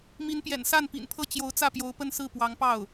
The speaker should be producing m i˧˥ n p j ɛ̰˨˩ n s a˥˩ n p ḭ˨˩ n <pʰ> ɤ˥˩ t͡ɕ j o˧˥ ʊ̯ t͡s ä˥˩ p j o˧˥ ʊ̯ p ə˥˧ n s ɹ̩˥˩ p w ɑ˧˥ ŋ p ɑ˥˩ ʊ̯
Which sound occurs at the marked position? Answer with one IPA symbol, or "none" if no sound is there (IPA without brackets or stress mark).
pʰ